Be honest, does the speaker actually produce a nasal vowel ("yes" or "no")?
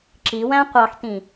yes